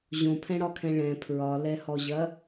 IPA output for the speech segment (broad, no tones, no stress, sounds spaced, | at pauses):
ʑ õ pʰ ɛ̃ ɽ ɒ kʰ ɛ̃ ɭ ɛ̃ pʰ ɹ ɒ l ɛ h ɔ ʑ ɐ